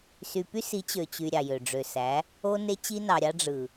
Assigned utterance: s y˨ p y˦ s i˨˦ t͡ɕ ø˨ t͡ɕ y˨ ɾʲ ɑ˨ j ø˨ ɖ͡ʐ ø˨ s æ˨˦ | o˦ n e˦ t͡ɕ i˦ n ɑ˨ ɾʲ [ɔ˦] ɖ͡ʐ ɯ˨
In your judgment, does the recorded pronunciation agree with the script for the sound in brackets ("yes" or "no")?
no